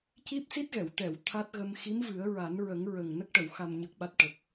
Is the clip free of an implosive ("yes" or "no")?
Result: no